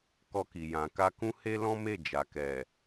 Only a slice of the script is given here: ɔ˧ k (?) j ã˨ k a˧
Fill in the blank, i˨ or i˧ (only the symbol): i˨